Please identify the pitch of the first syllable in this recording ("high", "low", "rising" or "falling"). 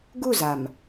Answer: falling